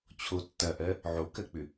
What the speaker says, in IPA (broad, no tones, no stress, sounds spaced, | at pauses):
t͡ɕʰ o tː ɐ ʔ ɜ | ʕ o k ɜ k͡p ʏ